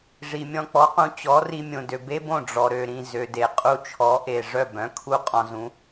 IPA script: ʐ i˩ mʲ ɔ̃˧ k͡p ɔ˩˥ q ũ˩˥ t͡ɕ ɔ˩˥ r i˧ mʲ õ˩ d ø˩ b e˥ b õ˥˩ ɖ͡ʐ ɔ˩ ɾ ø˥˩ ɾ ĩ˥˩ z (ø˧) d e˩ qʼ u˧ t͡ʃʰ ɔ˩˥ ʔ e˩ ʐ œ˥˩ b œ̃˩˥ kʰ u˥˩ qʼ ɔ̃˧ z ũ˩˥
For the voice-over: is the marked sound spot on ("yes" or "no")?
no